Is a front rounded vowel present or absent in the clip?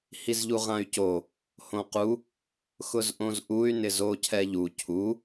present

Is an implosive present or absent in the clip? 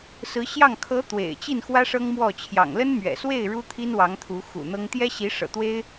absent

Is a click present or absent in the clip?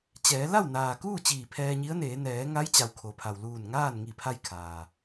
absent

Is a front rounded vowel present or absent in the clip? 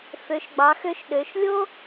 present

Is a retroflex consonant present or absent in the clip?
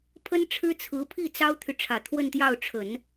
present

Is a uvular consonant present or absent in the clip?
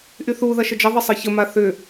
absent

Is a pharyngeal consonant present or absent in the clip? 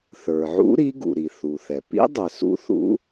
present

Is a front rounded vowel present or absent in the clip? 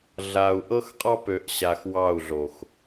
present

